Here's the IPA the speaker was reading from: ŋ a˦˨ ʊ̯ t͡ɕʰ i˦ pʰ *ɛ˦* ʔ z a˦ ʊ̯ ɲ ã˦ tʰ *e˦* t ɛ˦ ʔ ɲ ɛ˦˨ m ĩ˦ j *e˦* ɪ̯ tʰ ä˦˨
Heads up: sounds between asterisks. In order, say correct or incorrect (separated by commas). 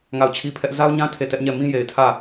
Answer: correct, incorrect, incorrect